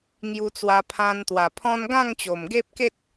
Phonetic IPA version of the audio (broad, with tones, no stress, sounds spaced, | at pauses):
ŋ j u˧ t͡s w a˧ pʰ ã˧ n t̪ w a˨˩ pʰ ɔ̃˦ n ɡ ã˥˧ ŋ t͡ɕ o˨˩ m ɡ e˦ p̚ k e˦ t̚